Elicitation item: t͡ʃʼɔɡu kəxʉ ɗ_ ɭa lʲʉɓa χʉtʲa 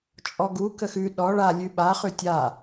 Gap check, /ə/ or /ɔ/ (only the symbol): ɔ